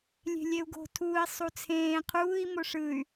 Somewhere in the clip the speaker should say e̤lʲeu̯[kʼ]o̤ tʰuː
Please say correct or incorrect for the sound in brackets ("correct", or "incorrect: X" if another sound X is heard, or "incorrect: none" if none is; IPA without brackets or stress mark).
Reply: incorrect: ɡ